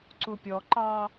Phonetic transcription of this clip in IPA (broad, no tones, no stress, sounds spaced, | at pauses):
ǀ u pʲ ɔ ǃ ɑː